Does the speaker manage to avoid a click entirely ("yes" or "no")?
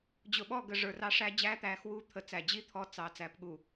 yes